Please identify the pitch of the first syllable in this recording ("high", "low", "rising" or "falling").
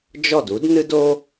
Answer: falling